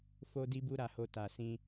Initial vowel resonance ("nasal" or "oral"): oral